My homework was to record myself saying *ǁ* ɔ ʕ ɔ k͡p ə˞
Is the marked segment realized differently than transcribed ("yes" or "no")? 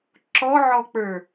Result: no